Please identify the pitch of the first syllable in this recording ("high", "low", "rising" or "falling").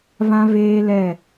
high